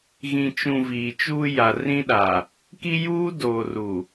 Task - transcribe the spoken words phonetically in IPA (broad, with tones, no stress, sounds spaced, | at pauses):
ɣ ĩ˨ t͡ʃ ũ˨ v iː˨ t͡ʃ uː˦ j a˨ r ĩ˦ ɗ a˨ | k i˦ j uː˦ d oː˨ r u˨